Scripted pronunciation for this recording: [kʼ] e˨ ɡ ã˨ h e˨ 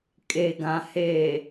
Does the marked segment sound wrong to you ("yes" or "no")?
no